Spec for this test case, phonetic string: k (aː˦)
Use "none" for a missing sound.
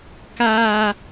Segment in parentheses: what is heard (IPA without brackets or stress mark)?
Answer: aː˦